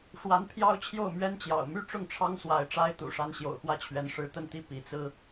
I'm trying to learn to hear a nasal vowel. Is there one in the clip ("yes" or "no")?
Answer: no